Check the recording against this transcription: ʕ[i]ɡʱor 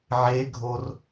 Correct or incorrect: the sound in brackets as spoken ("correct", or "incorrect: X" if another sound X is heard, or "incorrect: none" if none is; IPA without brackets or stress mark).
incorrect: e